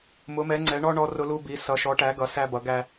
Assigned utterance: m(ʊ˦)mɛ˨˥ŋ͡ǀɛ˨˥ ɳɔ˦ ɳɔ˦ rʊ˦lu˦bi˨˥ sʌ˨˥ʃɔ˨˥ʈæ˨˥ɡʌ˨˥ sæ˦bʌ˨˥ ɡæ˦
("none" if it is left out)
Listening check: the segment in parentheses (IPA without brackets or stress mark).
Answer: ʊ˨˥